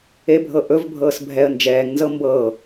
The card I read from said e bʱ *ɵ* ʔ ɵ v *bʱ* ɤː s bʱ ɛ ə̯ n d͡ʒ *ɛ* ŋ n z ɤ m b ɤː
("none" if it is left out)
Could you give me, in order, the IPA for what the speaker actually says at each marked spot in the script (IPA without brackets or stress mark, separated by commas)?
ɤ, bʱ, ɛː